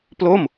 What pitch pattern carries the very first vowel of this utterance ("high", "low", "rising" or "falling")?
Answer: falling